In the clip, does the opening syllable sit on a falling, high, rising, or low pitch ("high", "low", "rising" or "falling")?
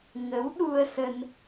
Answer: rising